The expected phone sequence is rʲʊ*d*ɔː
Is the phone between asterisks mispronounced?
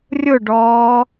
yes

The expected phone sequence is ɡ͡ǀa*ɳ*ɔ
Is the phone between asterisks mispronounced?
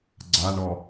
no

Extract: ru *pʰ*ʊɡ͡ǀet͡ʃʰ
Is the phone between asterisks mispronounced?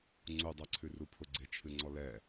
no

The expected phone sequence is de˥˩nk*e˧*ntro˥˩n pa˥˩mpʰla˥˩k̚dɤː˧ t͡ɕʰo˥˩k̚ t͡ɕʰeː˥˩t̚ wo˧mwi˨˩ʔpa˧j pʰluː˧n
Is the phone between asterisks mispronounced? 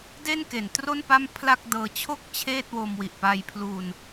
yes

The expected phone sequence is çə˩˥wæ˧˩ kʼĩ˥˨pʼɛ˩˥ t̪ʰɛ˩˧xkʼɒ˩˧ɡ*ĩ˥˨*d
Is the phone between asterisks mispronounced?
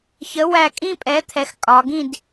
no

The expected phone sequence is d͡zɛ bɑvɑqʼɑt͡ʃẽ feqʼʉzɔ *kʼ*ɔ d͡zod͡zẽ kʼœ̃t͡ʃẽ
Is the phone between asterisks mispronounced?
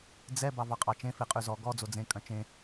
yes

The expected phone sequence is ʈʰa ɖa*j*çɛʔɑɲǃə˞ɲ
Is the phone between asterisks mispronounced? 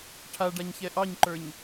yes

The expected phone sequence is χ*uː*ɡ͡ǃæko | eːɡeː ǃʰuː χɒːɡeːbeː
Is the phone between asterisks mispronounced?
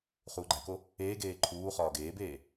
no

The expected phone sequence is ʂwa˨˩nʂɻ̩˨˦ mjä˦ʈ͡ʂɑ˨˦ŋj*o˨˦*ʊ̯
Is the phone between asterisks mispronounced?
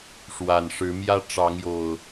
yes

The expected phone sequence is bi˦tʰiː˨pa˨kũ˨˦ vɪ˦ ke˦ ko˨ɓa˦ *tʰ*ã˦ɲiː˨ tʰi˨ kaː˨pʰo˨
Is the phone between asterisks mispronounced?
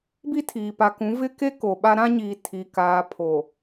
yes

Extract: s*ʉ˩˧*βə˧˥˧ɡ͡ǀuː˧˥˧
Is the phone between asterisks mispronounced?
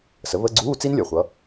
yes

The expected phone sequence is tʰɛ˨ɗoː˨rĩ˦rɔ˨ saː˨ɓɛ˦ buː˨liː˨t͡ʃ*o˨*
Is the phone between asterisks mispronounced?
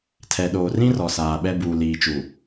yes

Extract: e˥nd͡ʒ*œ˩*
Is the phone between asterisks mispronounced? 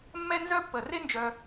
no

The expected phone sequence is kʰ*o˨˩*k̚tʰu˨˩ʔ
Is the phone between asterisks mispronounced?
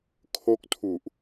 yes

